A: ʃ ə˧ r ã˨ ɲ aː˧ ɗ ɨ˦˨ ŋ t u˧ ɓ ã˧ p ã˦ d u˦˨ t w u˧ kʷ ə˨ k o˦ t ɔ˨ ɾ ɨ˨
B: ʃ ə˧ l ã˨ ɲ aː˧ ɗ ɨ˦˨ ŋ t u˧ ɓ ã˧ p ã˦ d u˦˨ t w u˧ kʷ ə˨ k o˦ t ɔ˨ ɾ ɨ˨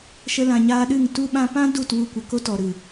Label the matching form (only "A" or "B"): B